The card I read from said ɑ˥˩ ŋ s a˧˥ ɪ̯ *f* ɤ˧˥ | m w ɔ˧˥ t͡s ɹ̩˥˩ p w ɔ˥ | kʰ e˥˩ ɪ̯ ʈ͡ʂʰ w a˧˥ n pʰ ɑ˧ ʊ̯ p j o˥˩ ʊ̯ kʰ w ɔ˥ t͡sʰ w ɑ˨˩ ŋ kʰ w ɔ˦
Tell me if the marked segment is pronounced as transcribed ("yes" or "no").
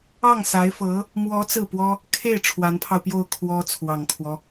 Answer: yes